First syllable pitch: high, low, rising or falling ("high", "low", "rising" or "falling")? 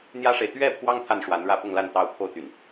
high